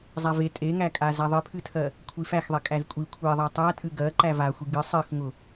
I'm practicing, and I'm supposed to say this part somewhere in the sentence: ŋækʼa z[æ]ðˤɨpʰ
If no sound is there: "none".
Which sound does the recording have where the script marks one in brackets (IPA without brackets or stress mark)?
æ